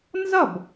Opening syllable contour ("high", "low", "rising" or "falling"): falling